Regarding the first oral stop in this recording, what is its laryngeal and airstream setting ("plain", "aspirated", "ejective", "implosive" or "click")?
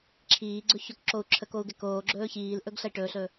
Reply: click